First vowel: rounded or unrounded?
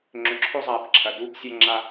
rounded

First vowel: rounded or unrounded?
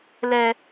unrounded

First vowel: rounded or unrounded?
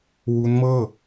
rounded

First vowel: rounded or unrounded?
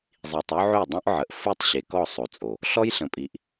unrounded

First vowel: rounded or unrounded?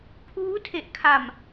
rounded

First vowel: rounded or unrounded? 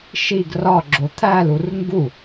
unrounded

